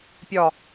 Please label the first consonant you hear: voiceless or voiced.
voiceless